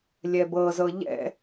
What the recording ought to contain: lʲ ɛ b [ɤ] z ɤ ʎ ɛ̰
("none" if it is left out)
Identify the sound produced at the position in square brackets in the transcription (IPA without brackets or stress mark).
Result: ɤ